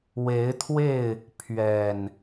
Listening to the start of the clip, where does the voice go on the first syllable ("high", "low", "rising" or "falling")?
rising